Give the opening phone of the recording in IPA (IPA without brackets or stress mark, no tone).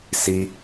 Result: s